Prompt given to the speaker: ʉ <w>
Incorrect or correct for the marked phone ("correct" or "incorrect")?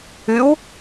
correct